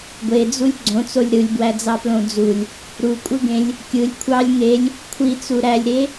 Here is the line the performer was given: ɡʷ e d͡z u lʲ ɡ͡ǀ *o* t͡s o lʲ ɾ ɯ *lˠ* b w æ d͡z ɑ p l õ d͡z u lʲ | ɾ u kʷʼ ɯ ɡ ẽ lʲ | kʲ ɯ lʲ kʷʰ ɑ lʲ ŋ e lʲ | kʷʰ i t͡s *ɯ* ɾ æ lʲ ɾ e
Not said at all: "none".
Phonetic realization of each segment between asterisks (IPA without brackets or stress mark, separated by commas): õ, lʲ, u